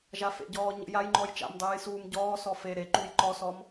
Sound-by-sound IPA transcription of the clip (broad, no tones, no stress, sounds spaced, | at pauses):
ʒ a f ḛ ɟ ɔː ɲ ə̰ j a j ŋ͡ǃ ɔ j t͡ʃ a̰ m dˤ ɨː j s uː m ɟ ɔː s ɔ f e ɾ e ǃ u j ǃ ɔ s ɔ m